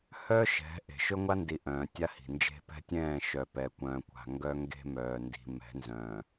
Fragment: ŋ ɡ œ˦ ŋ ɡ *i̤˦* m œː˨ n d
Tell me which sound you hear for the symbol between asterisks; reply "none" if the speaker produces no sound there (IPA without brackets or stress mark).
e̤˦